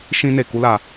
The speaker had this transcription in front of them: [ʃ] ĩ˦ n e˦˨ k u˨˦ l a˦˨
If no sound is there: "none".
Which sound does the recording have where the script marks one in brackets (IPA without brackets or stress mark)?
ʃ